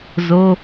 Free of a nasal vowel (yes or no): yes